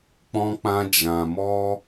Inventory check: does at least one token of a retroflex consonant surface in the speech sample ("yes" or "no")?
no